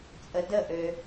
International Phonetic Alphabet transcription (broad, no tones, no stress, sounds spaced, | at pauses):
t͡sʼ ə d ə ʔ ø